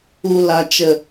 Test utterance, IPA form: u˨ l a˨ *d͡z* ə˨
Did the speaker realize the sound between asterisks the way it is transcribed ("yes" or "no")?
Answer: no